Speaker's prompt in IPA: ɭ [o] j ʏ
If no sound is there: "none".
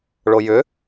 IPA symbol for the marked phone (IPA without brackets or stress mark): o